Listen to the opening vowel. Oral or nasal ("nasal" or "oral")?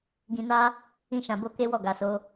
nasal